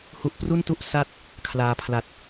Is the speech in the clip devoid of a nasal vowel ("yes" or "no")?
yes